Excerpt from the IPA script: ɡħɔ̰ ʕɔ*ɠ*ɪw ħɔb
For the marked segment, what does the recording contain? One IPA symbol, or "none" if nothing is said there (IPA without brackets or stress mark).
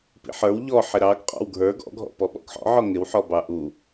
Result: ŋ